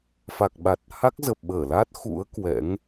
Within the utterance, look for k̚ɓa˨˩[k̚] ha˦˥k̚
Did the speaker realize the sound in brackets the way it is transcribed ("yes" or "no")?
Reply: no